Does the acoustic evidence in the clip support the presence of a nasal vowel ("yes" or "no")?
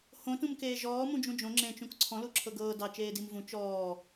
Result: yes